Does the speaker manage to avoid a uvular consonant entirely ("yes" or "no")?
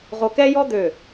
no